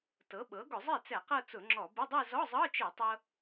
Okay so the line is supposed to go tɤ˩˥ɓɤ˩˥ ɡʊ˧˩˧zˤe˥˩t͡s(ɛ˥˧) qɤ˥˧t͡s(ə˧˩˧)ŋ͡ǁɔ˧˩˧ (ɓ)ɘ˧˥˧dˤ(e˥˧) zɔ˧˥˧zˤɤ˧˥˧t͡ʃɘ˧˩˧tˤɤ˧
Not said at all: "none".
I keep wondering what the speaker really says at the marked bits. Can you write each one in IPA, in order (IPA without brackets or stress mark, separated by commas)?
ɛ˧˩˧, ʊ˧˩˧, b, e˥˧